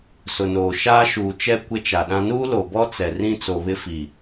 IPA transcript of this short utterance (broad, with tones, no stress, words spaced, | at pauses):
sʊ˨noː˨ ʃaː˦ʃuː˨t͡ʃɛ˦ kʷɪ˦t͡ʃa˨ɗã˦ nuː˦lo˨bɔ˦ t͡sɛ˨ rĩ˦t͡so˨βɪ˦fi˨